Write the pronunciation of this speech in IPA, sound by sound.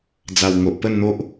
d͡za˨˩wŋo˨ʔpə˥˧nn̪o˦ʔ

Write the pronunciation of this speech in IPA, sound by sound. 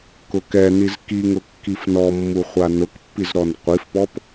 kʊkɛniz kiŋʊ kːifnɔmːuχʷa nʊkpːizɾɔn qʷifpɔp

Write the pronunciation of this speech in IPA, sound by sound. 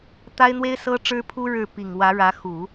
t̪a˥ɪ̯n̪we˥ɪ̯ sɤ˥ʈ͡ʂɻ̩˥pʰu˥ ɻɻ̩˥˩ pi˨˩ŋwä˧˥ɻä˧˥xu˨˩˦

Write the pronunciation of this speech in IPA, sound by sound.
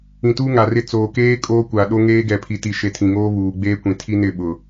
ĩ˨tuː˦ŋa˨rɪ˦ t͡soː˨keː˦ kʼoː˦ kʷa˨ɗo˦ ŋeː˦ ɡɛ˨pʰi˨ti˨ʃe˨ tʰĩ˨ŋoː˦ βuː˨ɡ͡beː˦kʷĩ˨ tʰi˦nɪ˦˨ ɓʊ˨

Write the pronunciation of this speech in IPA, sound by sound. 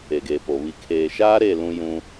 e˨ɡeː˨po˨ βi˨ kʰeː˨ʃaː˦ɾe˦˨ lũ˦jũ˦

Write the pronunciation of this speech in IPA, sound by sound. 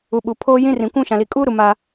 u˨ɓu˨ pʰoː˦jĩ˦ rĩ˨kʷũ˦˨ ʃã˨li˨kʼuː˦ɾu˨ ma˦

